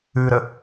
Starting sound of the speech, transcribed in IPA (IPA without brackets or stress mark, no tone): ʉ